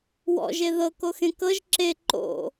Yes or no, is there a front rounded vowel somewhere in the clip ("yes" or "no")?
no